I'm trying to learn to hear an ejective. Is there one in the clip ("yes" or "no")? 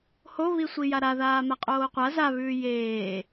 yes